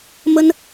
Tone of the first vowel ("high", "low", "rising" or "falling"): high